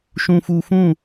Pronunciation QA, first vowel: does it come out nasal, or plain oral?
nasal